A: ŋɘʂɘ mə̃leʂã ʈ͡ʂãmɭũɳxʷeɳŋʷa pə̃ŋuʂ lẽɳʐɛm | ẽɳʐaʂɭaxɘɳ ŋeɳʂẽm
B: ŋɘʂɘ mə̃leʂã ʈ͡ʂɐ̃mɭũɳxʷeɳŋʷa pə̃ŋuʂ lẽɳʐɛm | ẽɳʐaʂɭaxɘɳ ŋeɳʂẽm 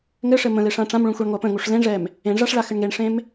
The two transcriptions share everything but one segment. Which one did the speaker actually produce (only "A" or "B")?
A